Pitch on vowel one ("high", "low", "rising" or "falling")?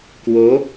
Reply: rising